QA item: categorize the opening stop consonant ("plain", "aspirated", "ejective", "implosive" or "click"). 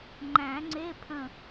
click